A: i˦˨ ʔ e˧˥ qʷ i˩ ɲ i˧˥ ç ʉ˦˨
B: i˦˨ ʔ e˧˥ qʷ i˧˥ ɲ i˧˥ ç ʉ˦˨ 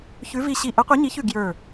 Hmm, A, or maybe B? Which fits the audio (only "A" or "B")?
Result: B